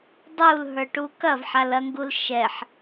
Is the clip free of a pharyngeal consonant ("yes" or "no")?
no